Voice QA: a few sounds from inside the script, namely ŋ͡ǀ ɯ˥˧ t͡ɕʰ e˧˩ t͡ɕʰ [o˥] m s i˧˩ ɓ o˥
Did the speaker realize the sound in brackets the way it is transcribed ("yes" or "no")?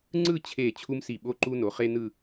no